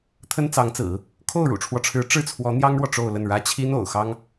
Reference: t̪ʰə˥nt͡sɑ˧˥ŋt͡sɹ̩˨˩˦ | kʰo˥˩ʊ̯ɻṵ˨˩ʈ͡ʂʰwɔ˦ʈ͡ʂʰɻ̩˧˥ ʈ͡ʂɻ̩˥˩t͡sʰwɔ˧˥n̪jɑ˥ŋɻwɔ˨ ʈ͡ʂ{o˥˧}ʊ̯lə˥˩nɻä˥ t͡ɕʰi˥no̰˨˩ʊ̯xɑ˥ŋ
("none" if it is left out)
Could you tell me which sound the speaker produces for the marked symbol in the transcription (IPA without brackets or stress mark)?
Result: o˥˧